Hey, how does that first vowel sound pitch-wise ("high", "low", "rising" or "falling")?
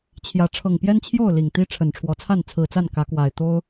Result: rising